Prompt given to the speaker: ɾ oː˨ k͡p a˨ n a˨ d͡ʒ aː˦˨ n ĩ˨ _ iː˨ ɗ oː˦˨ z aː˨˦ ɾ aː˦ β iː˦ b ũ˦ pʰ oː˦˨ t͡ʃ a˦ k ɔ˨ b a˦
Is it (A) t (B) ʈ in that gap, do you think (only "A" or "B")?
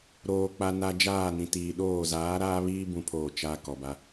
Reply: A